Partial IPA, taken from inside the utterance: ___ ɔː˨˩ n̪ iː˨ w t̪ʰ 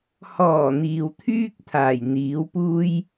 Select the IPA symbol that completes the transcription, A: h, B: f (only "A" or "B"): A